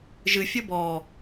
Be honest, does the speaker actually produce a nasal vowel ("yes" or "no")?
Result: no